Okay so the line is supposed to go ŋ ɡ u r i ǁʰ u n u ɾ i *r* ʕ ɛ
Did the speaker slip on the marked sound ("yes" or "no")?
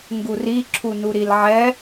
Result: yes